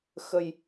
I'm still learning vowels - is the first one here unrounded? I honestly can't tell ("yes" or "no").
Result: yes